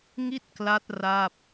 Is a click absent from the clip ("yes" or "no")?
yes